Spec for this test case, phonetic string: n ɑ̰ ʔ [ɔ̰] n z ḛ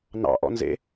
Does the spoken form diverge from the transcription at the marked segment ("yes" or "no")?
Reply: no